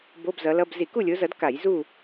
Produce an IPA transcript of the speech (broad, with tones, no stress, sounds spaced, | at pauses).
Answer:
b o˧˥˧ b z ʌ˨˦ l ʌ˧˥˧ b z i˧˩˧ k u˥˨ lʲ o˨˦ z ʌ˨˦ d k a˧˩˧ j z u˥˨